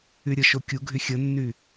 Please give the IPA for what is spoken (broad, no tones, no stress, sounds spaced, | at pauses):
y ɾʲ ə ʃ o kʲ u ɡʱ y xʲ ə nː y